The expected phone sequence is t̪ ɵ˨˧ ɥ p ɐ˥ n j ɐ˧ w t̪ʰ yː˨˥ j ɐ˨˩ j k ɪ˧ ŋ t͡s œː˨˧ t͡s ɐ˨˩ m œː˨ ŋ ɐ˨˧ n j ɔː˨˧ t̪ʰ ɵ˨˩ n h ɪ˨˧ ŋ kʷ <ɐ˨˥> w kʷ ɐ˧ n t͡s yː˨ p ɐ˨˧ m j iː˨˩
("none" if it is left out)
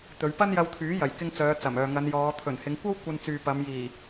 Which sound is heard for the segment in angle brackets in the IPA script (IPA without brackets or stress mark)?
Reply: ɐ˥